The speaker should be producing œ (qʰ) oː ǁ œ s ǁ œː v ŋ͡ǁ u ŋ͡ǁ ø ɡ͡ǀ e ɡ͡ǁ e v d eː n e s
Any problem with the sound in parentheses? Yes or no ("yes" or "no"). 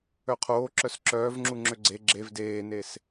no